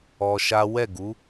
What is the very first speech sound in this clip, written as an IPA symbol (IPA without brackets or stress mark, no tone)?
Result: ɔ